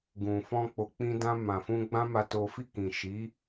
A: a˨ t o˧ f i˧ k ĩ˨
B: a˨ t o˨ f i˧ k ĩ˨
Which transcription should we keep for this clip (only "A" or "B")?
B